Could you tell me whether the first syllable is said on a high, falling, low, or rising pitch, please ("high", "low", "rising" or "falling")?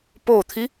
low